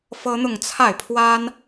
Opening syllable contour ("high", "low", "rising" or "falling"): high